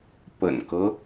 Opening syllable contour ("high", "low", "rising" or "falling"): low